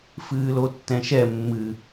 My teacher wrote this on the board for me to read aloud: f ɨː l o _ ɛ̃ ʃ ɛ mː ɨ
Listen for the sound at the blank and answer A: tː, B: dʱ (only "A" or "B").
A